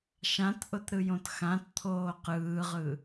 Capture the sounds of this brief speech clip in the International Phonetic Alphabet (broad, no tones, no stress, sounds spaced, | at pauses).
ʃ ã t ʔ ʊ t ɾ ɯ j õ t x ã t t̪ʰ oː q ɯː ʁ ɯ